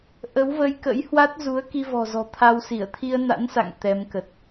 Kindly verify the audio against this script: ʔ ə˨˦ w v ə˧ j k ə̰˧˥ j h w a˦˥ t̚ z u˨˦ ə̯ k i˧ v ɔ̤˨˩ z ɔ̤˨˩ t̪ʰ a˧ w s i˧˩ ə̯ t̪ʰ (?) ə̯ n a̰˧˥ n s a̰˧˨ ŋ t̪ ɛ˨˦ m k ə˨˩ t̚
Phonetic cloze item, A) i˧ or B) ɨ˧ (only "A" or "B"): A